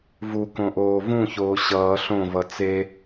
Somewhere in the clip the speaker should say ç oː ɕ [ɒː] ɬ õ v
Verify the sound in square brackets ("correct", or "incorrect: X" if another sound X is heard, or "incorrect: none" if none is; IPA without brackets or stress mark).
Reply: incorrect: ʌː